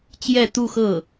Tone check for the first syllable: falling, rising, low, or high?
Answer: falling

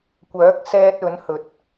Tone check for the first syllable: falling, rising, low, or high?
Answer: rising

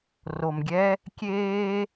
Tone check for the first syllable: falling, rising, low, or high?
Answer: low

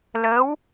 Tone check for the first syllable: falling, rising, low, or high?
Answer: rising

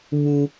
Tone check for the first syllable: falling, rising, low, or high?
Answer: high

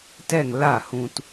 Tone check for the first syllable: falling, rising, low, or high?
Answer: falling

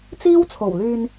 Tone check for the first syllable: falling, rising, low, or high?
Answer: high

